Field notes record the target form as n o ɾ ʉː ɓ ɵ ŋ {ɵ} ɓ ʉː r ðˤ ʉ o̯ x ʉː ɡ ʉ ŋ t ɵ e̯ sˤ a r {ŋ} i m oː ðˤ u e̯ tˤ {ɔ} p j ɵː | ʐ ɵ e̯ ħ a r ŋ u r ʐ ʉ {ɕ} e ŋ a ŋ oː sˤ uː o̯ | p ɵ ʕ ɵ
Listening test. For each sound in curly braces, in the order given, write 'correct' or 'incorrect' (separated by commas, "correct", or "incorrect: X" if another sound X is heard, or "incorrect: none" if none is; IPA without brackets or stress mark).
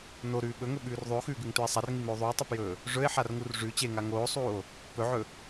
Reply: correct, correct, incorrect: ɵ, incorrect: t͡ɕ